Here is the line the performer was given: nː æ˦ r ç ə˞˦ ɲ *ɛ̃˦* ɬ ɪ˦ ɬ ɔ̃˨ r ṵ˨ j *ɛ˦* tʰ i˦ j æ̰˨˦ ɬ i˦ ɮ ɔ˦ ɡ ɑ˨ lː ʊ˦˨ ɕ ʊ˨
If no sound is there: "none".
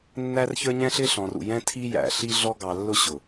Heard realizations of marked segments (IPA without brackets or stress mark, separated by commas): ɛ̃˦, ɛ̃˦